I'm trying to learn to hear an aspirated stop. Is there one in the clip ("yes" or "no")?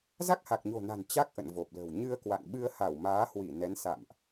no